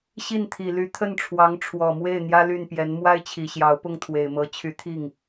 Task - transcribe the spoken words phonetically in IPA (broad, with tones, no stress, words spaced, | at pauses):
ɕi˥˩nt̪ʰi˨˩ly˧˥ t̪ʰə˥˩nʈ͡ʂʰwɑ˧˥ŋ ʈ͡ʂʰwɔ˨˩mwe˥˩ɪ̯ n̪jä˥ly˥˩npjɛ˧˥n mwa˥ɪ̯t͡ɕʰi˨˩ɕjɑ˧˥ʊ̯ pʊ˥˩ŋt̪ʰwe˨˩ɪ̯mɤ˧˥ t͡ɕʰy˧˥t̪ʰi˥˩ŋ